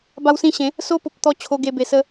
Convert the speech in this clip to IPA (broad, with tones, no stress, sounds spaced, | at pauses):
b a˧ w s ĩ˧ ɕ ẽ˨˦ | s o˧ p o˨ p̚ t̪ ɔ˧ t͡ɕʰ o˧ ɡ e˧ b e˧ s ə˦